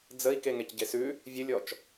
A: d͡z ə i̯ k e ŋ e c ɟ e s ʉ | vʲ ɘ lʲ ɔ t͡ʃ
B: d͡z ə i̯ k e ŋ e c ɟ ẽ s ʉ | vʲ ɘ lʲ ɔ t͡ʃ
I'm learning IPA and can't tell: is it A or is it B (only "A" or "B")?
A